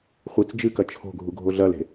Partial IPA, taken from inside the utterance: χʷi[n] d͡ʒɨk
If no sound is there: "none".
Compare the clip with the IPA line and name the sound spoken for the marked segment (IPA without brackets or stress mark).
t͡s